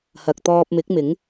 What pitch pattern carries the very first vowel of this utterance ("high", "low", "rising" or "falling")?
low